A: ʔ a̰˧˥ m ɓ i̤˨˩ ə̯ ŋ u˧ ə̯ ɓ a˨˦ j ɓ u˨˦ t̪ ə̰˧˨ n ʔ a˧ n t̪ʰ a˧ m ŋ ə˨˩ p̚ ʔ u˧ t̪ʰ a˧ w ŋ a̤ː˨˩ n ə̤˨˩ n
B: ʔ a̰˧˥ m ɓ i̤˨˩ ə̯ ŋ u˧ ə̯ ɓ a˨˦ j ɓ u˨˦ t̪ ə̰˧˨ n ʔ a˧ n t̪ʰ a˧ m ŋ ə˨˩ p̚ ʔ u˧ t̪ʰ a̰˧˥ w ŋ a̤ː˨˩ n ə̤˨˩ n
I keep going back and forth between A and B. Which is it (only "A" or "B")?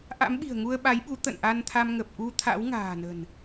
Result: B